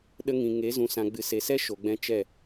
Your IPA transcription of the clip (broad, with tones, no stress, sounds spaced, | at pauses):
ɗ ə˧ ŋ ĩ˨ ŋ e˨˦ z ũ˨ s ã˨ ɡ͡b ɨ˨ s e˨ s ɛ˦ ʃ o˨ ɡ͡b ɛ̃˦ t͡ʃ ɛ˦˨